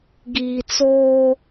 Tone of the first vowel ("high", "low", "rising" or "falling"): low